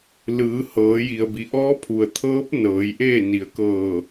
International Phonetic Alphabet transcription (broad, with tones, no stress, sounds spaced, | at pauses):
l ɯː˩˧ h ɤː˩˧ j i˩ ə̯ b i˩˧ ʔ ɔː˧˥ pʰ u˩ ə̯ t̪ʰ ɤː˧˥ p̚ n ɤː˩˧ j ʔ eː˥˨ n i˩˧ ə̯ k ɤː˧˩